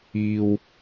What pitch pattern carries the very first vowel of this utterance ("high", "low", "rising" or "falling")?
low